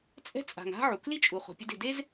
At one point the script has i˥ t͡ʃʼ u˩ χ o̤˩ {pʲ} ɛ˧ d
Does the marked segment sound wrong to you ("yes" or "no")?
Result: no